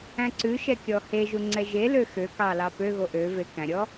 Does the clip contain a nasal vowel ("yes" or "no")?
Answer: yes